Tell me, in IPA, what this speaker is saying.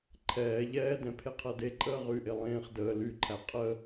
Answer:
ǃʰɛː ʎɛːdɛ̃ pʰeqʰɜdeǃʼəː ʁyʔe lˠẽːχ dəː lyǃʰæ qʼə

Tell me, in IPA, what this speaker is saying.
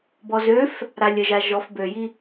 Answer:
bɔzøf | ɾalʲəʒa ʒɔfbøji

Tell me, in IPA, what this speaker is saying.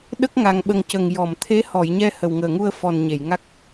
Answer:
ɗə˦˥k̚ŋa˨˩ŋɓə˨˩ŋ cə˨˩ŋjɔ˨˩˨mt̪ʰe˧˥ hɔ˨˩˨jɲɛ˧ hə˨˩wŋəː˨˩ŋu˧ə̯ fɔ˨˩n ɲe˨˩˨jŋa˦˥k̚

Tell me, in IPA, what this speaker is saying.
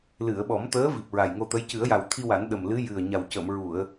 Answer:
lɨ˨˩˨ə̯ɓɔ˨˩˦mt̪əː˧˥ vi˨˩p̚ɹa˨˩jŋo˧t̪ə˧˥j cɨ˨˩˦ə̯ja˨˩wt̪ʰi˧wa˨˩˦n ɗə˨˩mlɨ˧˥ jɨ˨˩ə̯ɲa˨˩wcə˨˩˨mɹu˨˩˨ə̯

